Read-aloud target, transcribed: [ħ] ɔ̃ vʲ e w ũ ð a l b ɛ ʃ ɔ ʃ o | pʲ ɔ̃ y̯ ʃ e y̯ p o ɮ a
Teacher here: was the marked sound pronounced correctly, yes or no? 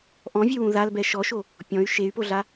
no